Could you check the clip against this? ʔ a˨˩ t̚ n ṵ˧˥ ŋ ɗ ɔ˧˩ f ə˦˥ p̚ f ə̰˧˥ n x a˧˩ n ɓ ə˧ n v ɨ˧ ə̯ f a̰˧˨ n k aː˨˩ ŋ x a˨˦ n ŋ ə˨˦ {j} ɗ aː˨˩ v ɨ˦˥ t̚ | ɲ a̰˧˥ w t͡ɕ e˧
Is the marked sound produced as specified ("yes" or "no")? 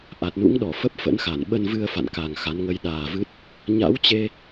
yes